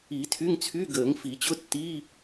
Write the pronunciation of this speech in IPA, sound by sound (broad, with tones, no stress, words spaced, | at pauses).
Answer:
i˨˩˦ tʰy˧˥˧ŋt͡sʰy˧˥˧ɡəː˨˩˦ŋ fi˨˩˦t͡ɕʊ˧˥˧ tːi˧˥˧